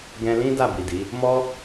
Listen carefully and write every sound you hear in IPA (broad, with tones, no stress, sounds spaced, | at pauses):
ɡ ɛ̃˧ l ĩ˦ d a˦˨ b i˨ d i˨˦ | m ɔ˦